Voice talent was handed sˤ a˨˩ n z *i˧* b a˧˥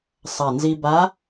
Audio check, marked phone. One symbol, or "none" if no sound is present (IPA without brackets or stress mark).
i˧